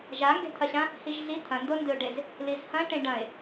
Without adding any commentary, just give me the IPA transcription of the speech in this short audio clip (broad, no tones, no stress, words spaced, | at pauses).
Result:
ʒaŋɡe̤t̪ʰɐɕã | hiʒɮi t̪ʰɐ̃ndondɨʊ̯ɖez | lizhɐ̃ ʈẽɖɐ̃ɪ̯